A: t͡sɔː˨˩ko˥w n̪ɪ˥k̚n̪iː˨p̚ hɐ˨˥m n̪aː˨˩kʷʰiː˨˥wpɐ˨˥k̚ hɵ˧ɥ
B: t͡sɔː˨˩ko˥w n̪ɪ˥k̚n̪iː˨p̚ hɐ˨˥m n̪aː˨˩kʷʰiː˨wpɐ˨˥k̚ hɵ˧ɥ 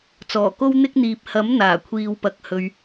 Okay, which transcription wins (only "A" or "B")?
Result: B